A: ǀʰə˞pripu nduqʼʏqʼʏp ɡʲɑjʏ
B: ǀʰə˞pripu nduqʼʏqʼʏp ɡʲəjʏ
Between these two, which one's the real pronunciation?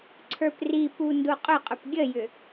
B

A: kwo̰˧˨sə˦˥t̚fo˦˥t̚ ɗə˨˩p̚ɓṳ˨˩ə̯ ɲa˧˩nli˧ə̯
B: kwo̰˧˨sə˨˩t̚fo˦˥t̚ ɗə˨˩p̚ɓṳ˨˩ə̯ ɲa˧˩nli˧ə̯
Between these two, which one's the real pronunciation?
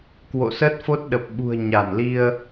A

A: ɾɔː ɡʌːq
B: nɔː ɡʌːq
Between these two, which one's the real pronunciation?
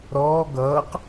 A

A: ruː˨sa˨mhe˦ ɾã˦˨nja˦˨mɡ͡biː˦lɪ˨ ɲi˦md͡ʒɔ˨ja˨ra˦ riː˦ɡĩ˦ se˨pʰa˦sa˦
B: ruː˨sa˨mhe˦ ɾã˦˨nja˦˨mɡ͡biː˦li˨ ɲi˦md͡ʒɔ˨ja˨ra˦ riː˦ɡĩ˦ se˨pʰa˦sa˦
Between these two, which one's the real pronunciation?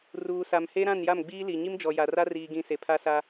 B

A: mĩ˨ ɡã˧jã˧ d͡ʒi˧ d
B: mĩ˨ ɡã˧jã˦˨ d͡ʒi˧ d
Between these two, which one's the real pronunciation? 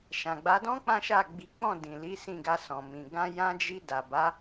A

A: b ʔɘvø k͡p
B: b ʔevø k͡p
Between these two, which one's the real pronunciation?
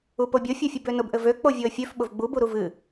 A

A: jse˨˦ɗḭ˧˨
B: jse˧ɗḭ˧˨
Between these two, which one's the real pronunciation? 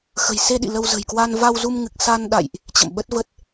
B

